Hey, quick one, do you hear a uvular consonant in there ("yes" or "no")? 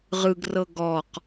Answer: yes